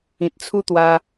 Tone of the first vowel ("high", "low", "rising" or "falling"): low